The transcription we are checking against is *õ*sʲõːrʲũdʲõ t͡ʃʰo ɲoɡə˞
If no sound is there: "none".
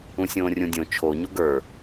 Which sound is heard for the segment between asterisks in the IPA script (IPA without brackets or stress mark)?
ũ